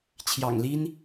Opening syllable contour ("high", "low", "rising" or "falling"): low